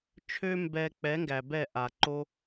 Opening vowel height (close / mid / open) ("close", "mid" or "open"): mid